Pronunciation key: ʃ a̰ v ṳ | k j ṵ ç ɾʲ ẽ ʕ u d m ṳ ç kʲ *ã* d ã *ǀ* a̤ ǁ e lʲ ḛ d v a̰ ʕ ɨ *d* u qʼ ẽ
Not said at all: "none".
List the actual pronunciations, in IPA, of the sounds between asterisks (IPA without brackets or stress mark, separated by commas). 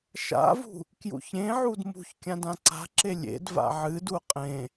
ã, ǀ, d